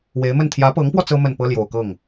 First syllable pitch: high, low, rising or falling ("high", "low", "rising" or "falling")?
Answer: rising